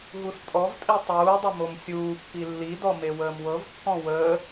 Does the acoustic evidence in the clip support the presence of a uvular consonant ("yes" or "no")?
no